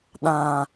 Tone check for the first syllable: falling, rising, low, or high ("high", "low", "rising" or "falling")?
low